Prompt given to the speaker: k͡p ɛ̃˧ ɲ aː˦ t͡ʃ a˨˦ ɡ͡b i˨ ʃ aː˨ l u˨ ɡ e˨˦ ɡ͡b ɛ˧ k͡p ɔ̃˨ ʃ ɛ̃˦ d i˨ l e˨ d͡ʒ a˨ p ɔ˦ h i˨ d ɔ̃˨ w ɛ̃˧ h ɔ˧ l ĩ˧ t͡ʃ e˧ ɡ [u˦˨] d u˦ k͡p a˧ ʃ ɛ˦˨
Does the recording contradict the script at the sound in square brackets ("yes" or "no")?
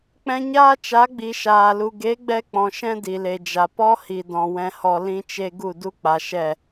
no